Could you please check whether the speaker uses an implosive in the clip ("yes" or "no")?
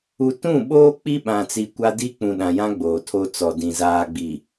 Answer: yes